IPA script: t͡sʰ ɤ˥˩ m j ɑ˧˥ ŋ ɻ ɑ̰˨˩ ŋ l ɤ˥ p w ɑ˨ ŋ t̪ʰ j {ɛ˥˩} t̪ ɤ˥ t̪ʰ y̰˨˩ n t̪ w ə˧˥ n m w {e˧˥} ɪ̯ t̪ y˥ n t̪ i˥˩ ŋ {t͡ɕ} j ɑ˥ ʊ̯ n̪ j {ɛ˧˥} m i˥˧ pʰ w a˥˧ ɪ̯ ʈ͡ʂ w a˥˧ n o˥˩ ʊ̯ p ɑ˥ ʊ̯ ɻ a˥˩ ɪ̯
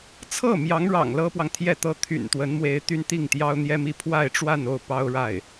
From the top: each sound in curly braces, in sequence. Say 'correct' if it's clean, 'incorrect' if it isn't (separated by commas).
correct, correct, incorrect, incorrect